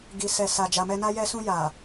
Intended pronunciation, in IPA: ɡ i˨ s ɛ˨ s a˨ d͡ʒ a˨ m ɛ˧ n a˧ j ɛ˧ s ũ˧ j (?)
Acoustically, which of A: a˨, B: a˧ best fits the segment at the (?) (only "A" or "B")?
A